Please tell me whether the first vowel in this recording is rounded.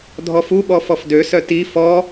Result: yes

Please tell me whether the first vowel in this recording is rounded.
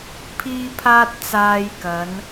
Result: no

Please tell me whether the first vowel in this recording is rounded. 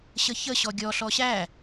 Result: no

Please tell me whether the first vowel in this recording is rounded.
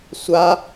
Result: no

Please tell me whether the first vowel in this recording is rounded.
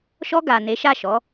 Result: yes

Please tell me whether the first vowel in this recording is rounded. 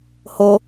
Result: yes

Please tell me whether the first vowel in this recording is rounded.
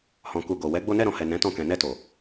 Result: yes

